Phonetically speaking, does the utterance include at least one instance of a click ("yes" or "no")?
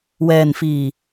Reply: no